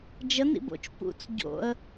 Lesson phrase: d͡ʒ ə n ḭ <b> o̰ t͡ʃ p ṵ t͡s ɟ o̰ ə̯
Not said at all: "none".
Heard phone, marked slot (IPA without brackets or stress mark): b